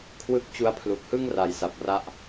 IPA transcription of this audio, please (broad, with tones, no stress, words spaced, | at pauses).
kʰwɯ˦˥k̚t͡ɕu˧a̯pʰlu˨˩k̚hɯ˥˩ŋ ra˨˩jsa˨˩p̚ra˦˥ʔ